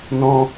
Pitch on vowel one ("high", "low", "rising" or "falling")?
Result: high